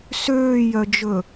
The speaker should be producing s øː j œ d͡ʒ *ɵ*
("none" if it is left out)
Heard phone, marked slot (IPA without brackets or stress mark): ɵ